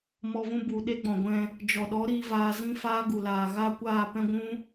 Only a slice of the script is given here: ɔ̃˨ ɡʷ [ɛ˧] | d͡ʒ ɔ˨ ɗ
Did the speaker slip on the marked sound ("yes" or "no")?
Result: yes